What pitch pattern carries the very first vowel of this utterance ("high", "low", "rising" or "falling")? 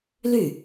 falling